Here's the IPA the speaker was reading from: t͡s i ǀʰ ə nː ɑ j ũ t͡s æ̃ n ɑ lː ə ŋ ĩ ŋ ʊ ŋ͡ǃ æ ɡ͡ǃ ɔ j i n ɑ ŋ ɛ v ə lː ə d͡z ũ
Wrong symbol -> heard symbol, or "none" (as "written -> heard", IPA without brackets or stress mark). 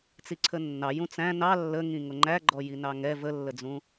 none